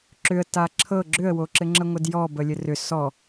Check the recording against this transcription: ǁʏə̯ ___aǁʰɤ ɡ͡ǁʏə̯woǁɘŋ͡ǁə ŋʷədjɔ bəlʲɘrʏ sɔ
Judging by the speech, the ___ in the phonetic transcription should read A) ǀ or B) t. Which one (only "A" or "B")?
B